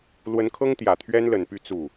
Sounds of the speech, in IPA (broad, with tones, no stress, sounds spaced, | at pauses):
l w ə˧˥ n kʰ ɤ˥ ŋ t̪ j ä˨˩ t̪ʰ ɥ ɛ˥ n l ə˨˩ n p y˥˧ t͡s u˥˩